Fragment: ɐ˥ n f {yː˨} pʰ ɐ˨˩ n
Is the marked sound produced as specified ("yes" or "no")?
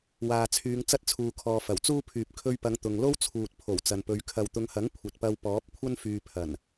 yes